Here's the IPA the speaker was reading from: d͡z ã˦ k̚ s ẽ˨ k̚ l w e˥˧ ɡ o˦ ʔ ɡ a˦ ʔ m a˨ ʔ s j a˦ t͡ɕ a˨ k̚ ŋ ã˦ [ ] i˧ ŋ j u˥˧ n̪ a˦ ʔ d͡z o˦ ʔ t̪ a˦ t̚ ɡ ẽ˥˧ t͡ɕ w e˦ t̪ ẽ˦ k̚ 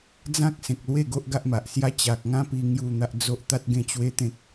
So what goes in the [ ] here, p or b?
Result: p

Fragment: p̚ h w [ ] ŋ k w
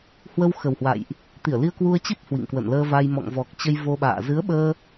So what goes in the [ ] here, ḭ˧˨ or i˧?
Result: ḭ˧˨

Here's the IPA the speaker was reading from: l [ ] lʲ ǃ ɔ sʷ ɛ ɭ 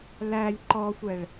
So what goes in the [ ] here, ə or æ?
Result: æ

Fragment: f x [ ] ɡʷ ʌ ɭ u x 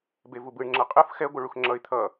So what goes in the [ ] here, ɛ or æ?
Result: ɛ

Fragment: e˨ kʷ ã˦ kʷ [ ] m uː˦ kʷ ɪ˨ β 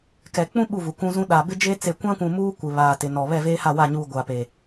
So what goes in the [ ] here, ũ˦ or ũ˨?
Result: ũ˨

